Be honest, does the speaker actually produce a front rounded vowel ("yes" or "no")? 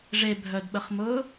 yes